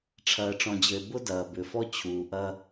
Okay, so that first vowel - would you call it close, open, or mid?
open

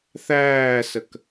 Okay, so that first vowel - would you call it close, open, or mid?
open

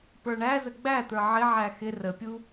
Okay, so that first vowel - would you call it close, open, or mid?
mid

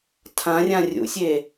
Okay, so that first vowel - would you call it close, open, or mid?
open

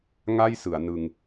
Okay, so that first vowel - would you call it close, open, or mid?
open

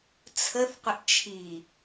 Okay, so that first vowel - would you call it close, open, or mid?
mid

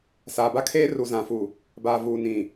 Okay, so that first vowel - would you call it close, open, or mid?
open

